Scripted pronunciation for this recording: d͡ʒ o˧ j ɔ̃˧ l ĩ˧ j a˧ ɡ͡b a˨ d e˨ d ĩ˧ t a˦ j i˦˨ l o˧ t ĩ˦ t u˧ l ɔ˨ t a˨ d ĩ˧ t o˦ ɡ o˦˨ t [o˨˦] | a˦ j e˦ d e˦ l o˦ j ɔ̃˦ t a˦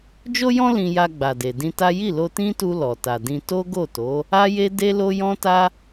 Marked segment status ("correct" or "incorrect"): correct